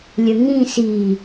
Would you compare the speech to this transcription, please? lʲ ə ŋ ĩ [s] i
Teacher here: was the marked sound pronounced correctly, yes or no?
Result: yes